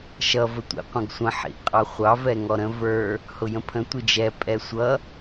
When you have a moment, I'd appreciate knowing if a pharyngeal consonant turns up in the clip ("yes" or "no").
yes